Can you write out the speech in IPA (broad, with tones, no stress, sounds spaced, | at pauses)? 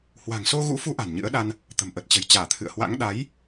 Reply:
h w a̤˨˩ ŋ s o˧ ɣ ṵ˧˥ f u˨˦ ʔ a̤˨˩ n ɲ ɨ̰˧˥ ə̯ ɗ a˧ n | t̪ ə̤˨˩ m ʔ ə˨˩ t̚ t͡ɕ ə̤˨˩ j t͡ɕ aː˧˩ t̪ʰ ɨ̰˧˨ ə̯ h w a̰˧˥ ŋ ɗ a˨˦ j